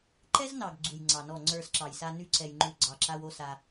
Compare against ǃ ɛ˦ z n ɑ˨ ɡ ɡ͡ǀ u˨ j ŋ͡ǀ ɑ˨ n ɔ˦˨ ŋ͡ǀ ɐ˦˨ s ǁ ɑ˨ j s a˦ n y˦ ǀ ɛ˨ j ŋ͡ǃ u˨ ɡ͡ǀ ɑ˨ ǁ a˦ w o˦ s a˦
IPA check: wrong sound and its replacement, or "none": ɐ˦˨ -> ə˞˦˨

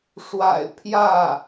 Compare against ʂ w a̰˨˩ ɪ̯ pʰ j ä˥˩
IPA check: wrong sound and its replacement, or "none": none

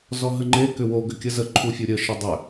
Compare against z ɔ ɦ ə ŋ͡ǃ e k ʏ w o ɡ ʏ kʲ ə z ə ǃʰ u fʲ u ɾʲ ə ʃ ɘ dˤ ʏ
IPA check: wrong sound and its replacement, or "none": none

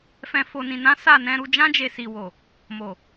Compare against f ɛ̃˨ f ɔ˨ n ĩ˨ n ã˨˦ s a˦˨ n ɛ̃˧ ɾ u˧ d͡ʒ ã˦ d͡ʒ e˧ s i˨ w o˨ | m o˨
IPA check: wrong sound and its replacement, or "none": ɔ˨ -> o˨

